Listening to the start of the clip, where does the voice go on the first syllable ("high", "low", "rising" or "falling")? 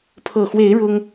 low